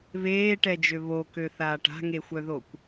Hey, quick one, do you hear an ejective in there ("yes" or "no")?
no